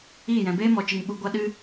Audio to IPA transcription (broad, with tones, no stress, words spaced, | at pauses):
i˦˨ jɛ̃˨beː˦mɔ˨t͡ʃɨ˨ŋ ɓu˧ɡʷa˦ɗɨ˦